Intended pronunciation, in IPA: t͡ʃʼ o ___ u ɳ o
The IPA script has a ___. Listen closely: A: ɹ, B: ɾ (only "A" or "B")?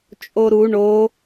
B